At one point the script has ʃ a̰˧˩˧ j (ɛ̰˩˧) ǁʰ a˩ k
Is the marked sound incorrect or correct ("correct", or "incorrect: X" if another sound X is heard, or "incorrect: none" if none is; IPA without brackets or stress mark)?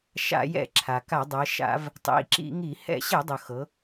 incorrect: ɛ̰˧˩˧